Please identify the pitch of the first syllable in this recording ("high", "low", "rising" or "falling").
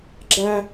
high